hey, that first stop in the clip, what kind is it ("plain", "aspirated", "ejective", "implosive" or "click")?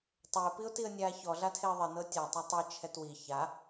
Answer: plain